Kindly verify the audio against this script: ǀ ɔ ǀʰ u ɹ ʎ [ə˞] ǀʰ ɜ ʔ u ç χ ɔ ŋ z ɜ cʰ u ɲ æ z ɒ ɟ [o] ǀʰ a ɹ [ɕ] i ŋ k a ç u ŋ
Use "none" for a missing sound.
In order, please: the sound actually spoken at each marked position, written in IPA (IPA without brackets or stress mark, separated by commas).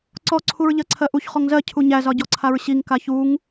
ɜ, ɔ, ɕ